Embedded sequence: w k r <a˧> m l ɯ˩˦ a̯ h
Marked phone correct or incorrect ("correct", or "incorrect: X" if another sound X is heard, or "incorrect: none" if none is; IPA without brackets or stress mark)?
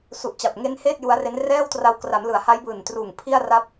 incorrect: a˩˦